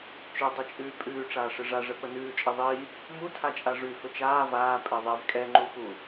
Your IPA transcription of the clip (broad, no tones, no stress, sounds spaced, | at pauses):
t͡ʃ ɵ dˤ i t͡ʃʼ ʉː pʼ ʉː ʈ͡ʂ aː ʂ ɨ ʐ a ʐ ə p ə n ʉː t͡ʃʼ e ðˤ iː | m u tʰ a t͡ʃʼ a ʐ ʉ f ɵ t͡ʃ aː v aː pʼ e ðˤ e v kʼ ɛ ŋ͡ǃ u f u